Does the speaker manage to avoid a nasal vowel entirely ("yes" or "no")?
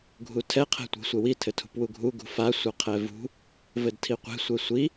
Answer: yes